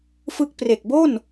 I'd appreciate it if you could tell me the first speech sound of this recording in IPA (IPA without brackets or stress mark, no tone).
f